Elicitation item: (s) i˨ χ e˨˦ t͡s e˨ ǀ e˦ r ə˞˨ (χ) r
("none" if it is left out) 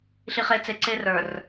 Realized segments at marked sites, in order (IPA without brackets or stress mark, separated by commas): ɬ, none